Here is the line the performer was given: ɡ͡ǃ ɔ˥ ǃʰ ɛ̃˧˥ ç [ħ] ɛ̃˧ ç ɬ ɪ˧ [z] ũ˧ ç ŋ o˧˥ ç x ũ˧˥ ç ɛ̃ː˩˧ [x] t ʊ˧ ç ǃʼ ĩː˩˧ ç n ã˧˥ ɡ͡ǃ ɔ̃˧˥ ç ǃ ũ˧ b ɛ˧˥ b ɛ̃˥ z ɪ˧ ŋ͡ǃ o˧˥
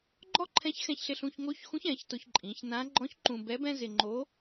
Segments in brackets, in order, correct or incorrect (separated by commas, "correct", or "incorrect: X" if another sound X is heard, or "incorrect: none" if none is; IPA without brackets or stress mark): incorrect: x, incorrect: ɬ, incorrect: ç